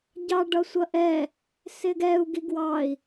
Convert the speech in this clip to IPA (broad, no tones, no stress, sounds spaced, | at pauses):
ɟ ɑ ɖ ʌ sʷ ʌ ʔ ɛ | s ɪ ɡ ɛ u̯ ɡ i ɡ w ɑ i̯